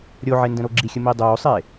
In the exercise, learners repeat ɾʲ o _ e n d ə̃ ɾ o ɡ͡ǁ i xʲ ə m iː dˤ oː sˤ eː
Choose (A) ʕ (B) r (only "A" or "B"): A